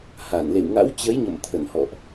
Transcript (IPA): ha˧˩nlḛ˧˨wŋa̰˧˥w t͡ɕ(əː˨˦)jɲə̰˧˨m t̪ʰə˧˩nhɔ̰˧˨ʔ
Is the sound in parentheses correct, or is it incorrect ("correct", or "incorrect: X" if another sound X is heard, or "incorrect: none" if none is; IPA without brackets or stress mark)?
incorrect: ə˨˦